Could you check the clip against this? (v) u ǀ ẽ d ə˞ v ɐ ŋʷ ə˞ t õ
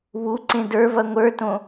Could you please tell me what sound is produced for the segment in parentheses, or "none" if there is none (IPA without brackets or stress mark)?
β